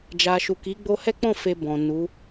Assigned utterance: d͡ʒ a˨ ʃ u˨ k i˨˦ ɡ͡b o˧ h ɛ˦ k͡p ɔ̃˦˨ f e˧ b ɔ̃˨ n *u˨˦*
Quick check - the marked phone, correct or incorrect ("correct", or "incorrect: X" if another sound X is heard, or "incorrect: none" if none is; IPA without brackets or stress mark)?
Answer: correct